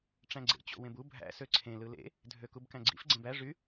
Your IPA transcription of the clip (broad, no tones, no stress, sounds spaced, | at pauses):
ʈ͡ʂ æ̃ ɡ͡ǀ ḛ t͡ɕ o̰ w ẽ b u bʱ æ̰ s ø ǀʰ ẽ l ɯ l ḛ | dʱ ø k u b k æ̃ ɡ͡ǀ ḭ f ɡ͡ǀ ẽ b æ ʐ y